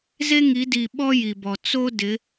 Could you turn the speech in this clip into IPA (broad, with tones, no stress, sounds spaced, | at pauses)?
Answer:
z e˦ ŋ i˨˦ d i˨ ɓ ɔ˦ j i˨ b ɔ˨ t͡s o˦ d ɪ˨˦